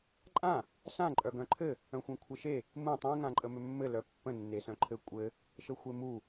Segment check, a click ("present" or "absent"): present